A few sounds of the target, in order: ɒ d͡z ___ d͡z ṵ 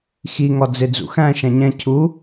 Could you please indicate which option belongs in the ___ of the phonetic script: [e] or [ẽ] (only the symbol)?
e